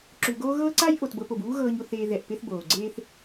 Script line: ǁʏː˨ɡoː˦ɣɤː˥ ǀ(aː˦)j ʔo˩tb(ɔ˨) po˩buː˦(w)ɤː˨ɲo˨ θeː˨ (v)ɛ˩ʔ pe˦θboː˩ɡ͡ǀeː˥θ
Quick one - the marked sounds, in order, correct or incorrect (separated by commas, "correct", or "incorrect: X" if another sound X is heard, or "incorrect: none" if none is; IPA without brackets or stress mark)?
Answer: incorrect: a˦, incorrect: ɤ˨, incorrect: ɣ, incorrect: ð